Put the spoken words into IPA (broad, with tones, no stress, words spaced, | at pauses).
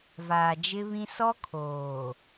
vaː˨d͡ʒɪ˦βĩ˦ sɔ˦kʰoː˨